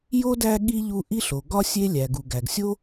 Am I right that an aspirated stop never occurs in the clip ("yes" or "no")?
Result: yes